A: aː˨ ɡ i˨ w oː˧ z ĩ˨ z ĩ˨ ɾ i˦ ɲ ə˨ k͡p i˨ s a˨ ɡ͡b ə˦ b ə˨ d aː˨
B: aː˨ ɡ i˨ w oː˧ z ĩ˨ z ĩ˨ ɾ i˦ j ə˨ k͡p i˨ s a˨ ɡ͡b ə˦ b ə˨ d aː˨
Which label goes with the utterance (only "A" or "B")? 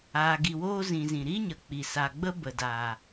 A